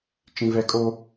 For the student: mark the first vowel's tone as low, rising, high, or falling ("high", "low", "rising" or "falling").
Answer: high